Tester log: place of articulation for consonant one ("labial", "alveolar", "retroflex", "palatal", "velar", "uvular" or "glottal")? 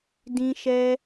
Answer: alveolar